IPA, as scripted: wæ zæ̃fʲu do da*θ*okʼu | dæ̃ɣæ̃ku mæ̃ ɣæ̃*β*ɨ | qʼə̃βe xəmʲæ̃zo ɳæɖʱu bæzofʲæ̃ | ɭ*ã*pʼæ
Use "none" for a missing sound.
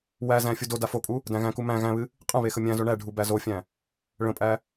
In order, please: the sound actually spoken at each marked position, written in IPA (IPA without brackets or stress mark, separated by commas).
f, β, ə̃